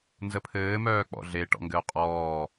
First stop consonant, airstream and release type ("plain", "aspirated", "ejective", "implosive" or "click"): aspirated